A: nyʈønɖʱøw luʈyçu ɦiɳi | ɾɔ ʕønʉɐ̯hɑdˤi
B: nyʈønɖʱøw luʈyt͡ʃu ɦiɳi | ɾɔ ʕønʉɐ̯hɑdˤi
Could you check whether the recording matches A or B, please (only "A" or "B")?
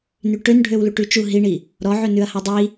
B